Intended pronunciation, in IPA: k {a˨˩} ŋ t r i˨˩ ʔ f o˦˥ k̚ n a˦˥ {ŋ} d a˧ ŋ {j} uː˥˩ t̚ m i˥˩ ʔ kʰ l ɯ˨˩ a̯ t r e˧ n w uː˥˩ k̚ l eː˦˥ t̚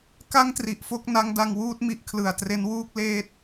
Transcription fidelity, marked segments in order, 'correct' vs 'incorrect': incorrect, correct, incorrect

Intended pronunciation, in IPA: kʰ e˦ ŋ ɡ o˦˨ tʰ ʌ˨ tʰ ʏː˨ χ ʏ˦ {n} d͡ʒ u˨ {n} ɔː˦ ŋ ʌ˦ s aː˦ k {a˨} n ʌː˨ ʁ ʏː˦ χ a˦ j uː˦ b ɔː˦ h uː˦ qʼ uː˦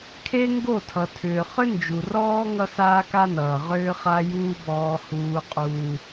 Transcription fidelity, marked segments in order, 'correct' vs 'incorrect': correct, incorrect, incorrect

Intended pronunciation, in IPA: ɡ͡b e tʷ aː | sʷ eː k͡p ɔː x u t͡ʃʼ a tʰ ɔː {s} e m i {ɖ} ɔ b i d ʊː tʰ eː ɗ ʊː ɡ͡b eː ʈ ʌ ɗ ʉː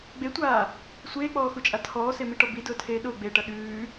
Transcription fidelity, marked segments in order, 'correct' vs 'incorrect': correct, incorrect

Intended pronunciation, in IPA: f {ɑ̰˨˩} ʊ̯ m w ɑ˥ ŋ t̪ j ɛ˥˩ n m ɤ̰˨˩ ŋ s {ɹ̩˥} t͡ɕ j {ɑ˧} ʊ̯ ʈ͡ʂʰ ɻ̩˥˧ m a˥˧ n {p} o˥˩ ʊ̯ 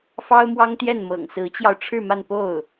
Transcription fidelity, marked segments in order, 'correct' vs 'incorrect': incorrect, incorrect, correct, correct

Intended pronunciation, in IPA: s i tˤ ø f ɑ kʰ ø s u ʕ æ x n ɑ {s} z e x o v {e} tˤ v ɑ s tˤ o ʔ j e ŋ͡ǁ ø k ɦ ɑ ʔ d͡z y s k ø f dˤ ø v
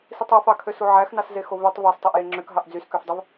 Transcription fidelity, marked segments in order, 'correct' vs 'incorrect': correct, incorrect

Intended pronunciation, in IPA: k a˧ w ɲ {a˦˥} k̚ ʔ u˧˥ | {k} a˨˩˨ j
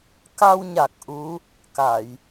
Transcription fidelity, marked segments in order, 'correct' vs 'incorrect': incorrect, correct

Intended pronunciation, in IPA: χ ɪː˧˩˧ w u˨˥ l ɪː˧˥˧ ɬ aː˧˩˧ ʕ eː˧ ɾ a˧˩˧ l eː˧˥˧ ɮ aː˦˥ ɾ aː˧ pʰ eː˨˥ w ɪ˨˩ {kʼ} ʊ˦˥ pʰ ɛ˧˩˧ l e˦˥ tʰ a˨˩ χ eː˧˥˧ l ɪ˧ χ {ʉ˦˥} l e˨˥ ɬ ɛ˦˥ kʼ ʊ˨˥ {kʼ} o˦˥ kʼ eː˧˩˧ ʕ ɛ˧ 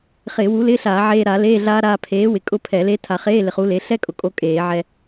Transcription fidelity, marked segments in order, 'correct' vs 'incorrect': correct, incorrect, correct

